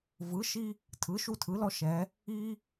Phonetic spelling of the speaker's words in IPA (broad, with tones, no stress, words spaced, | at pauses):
vɯ˩˥ʃi˦ | tʰɯ˩˥ʃu˦ tʰɯ˩˥lɔ˦ʃɛ˩˧ | i˦